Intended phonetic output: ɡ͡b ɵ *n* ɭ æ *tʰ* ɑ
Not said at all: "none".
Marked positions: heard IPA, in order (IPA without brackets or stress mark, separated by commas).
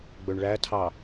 ɳ, tʰ